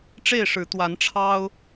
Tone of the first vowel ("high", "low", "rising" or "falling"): falling